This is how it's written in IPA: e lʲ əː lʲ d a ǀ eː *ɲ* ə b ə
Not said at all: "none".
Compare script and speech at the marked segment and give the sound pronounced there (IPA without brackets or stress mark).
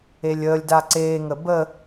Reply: ŋ